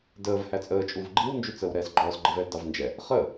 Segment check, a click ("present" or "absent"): present